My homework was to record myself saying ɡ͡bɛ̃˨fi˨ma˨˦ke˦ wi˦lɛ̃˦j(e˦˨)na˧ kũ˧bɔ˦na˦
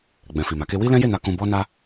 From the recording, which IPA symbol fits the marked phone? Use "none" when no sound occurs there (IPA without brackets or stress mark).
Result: e˦˨